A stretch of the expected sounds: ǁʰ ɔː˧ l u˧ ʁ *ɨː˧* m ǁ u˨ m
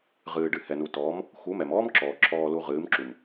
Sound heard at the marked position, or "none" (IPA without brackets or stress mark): ɨː˨˦